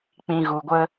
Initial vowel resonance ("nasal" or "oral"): nasal